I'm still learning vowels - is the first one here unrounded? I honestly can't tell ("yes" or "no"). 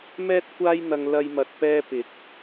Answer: yes